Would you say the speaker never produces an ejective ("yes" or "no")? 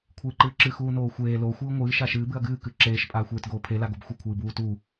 no